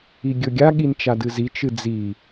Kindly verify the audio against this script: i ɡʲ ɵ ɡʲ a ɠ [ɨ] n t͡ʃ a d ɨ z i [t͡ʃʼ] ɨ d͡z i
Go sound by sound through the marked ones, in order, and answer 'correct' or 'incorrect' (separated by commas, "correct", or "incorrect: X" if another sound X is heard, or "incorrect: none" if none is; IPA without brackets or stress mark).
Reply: incorrect: i, incorrect: t͡ʃ